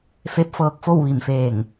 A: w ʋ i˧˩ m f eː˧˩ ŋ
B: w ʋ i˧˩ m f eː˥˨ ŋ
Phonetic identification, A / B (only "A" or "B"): A